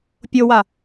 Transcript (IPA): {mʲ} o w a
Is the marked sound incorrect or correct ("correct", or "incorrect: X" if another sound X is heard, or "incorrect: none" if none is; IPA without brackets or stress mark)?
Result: incorrect: pʲ